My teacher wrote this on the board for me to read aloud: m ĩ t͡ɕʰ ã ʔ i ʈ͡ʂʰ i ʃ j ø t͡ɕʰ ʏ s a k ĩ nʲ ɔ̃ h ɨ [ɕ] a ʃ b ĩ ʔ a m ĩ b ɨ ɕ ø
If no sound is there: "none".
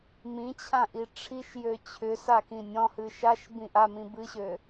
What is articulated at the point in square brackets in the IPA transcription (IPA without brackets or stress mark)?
ʃ